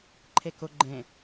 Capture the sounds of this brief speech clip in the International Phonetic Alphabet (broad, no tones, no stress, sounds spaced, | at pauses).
ǃʰ e k ʊ ɡ͡ǃ ẽ